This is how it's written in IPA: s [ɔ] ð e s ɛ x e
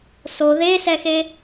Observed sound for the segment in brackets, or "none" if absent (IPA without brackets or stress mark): o